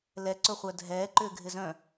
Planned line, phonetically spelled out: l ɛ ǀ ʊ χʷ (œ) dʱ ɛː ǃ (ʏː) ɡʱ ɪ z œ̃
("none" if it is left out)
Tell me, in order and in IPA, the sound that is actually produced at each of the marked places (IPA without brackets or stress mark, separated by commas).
œ, ʏː